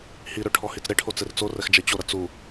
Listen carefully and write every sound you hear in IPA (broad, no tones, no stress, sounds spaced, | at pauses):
h i ɾ ø ʈʰ ɔ h i t͡s ɾ e ʈʰ o t͡s e r t͡s o r ɛ x d͡ʒ ɛ t͡ɕ o ɾ ɐ t͡s u